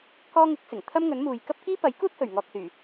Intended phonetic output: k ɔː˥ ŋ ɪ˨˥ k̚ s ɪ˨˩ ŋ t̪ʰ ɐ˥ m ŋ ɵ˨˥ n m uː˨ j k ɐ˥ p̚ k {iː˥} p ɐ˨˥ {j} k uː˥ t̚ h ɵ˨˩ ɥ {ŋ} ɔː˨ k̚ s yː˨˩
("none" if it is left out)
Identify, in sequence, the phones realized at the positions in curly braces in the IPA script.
iː˥, j, ŋ

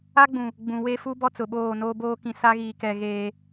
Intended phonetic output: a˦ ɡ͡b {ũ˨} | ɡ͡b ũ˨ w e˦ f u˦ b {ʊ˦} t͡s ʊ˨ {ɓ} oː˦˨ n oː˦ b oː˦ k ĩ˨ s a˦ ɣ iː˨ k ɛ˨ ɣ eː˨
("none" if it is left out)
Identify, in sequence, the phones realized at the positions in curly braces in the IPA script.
ũ˨, ɔ˦, ɓ

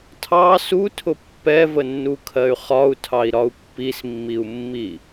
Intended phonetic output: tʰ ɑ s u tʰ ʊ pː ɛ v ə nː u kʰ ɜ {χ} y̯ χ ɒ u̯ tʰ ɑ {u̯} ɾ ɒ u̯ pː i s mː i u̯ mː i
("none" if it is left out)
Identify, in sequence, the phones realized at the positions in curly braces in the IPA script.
none, i̯

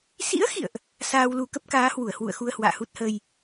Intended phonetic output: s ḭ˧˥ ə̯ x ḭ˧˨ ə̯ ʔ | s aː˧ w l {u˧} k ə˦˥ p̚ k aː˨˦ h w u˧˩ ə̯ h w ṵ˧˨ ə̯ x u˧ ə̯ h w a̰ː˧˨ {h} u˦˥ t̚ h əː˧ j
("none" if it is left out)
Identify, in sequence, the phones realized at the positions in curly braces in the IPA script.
u˧, h

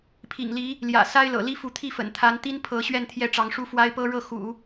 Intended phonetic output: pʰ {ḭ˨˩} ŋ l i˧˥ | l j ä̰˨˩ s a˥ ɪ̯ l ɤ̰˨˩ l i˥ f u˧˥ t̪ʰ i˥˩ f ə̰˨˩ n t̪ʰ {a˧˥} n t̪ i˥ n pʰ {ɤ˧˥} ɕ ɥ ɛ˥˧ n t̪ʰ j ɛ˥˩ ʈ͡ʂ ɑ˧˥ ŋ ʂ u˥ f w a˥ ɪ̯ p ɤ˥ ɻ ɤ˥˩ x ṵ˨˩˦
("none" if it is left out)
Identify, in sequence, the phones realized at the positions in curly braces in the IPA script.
ḭ˨˩, a˧˥, ɤ˧˥

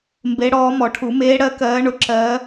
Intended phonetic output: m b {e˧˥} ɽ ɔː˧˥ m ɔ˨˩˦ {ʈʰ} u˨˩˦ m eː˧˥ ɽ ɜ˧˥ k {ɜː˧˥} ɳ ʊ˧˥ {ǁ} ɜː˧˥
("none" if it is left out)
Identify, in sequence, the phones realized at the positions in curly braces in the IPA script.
e˧˥, ʈʰ, ɜː˧˥, ǁ

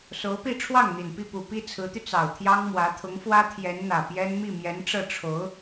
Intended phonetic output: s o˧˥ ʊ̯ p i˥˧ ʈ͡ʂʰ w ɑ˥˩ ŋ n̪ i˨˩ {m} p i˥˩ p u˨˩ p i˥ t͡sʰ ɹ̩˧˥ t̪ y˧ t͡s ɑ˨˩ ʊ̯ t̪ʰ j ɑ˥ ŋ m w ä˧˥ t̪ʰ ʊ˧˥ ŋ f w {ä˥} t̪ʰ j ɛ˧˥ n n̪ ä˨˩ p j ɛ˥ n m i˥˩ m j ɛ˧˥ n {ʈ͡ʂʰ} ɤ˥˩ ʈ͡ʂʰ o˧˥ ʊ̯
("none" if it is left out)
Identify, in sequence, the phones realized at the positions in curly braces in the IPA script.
n, ä˥, ʈ͡ʂ

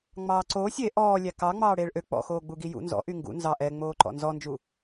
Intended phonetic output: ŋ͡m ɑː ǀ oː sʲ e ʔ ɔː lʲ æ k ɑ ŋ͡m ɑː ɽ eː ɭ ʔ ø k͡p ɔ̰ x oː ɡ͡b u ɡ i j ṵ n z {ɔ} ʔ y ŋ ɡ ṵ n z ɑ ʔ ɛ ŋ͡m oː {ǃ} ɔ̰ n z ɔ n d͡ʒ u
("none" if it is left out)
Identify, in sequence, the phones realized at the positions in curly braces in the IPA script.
ɔ̰, ǃ

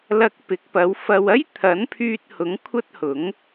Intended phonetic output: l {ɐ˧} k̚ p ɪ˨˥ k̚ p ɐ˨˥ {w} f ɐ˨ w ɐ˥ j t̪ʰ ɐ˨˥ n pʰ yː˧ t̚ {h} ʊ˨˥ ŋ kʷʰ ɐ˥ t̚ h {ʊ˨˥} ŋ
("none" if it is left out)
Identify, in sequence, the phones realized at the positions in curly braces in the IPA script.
ɐ˧, w, h, ʊ˨˥

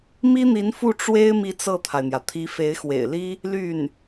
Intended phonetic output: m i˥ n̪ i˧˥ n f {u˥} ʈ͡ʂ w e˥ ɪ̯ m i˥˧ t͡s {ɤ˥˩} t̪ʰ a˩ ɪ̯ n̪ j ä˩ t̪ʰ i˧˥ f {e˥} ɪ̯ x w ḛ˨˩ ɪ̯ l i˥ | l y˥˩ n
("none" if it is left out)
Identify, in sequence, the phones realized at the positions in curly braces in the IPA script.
u˥˩, ɤ˥˩, e˧˥

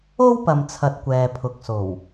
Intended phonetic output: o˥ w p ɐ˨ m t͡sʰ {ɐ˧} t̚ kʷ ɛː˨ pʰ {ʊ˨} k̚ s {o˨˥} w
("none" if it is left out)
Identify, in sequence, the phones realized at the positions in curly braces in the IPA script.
ɐ˨, ʊ˨, o˨˩

